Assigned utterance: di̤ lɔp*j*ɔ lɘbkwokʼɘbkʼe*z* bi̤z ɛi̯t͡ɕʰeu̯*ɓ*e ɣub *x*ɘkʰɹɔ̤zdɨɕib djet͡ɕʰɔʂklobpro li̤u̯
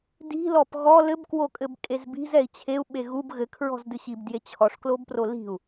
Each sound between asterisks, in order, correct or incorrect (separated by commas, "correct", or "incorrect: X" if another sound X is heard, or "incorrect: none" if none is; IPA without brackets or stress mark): incorrect: ɣ, correct, correct, incorrect: ɣ